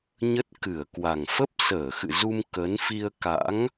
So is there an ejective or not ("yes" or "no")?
no